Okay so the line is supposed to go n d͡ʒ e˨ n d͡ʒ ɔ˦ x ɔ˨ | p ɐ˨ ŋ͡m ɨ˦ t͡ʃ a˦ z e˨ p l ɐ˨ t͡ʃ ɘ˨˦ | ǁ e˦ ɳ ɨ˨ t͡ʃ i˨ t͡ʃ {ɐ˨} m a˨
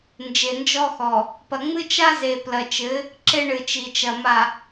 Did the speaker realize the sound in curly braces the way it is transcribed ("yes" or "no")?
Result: yes